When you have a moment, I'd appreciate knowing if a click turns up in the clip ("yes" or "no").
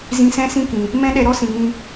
no